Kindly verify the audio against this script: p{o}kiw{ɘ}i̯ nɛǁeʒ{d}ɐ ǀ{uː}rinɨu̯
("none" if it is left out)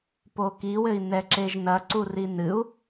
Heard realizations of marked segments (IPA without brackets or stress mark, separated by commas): o, ɘ, n, u